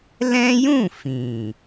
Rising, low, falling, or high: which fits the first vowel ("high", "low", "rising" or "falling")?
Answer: high